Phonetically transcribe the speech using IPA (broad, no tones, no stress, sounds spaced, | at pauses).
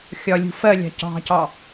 xʲ ɒ lʲ ṳ f ɜ lʲ ɑ̤ c ɑ̤ c ɑ